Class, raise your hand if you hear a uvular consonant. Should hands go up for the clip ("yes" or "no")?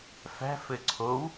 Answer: no